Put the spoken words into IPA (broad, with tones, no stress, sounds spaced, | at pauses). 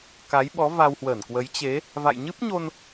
k a˨˦ j ɓ ɔ˨˦ v a˧ w h w ə˧˩ n k w ə˨˦ j t͡ɕ e˨˦ | v a̰˧˨ j ɲ ɨ˦˥ p̚ ɲ o˧ n